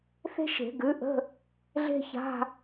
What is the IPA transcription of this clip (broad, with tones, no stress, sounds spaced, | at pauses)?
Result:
θ e̤˥ ʃ e̤˨˩˦ ɡ ʉ˩˥ ʔ ə̤˧˥˧ | ɮ e̤˥ ç a̤˧˥˧